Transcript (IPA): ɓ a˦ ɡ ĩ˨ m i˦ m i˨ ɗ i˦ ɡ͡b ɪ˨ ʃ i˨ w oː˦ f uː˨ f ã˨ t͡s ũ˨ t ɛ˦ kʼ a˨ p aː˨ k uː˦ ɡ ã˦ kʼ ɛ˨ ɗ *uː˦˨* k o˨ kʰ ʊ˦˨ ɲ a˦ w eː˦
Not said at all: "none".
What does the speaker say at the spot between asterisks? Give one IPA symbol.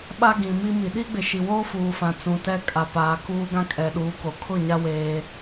uː˨˦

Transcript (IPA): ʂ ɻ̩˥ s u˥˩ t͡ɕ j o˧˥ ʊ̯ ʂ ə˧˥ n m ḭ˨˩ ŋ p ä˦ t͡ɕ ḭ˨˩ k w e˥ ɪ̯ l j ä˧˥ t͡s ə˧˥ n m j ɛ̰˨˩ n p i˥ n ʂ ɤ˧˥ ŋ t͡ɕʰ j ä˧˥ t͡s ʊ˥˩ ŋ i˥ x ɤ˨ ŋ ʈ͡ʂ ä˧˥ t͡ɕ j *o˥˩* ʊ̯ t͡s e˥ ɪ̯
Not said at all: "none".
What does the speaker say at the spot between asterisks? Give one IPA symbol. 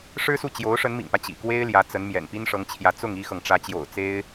o̰˨˩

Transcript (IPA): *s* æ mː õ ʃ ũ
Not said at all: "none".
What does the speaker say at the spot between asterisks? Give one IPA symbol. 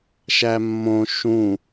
ʃ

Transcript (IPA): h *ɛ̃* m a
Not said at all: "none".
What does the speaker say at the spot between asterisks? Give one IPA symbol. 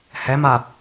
ɛ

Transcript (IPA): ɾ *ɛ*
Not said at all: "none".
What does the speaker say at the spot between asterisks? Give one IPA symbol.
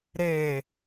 e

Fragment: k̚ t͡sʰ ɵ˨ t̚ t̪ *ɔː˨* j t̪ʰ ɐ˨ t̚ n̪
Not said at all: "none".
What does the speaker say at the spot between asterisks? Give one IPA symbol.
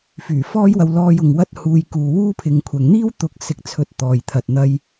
ɔː˨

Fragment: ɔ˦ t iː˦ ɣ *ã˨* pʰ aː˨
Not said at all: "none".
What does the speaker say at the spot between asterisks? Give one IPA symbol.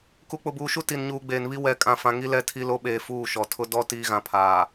ã˨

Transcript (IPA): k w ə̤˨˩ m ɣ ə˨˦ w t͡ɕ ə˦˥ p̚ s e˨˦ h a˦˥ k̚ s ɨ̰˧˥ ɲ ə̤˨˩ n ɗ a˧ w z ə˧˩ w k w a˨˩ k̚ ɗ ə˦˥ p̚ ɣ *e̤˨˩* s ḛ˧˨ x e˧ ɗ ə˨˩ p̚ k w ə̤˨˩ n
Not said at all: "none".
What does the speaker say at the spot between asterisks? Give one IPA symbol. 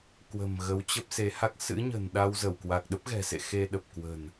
ɛ̤˨˩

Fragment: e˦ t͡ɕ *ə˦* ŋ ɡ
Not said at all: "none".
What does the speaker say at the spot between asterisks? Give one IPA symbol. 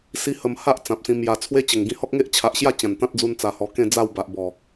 ə˨˩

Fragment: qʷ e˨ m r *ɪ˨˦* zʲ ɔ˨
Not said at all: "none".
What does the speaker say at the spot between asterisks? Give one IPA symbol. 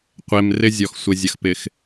ɪ˦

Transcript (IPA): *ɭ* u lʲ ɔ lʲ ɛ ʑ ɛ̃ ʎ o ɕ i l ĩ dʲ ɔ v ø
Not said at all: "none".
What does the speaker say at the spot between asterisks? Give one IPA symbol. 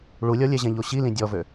ɭ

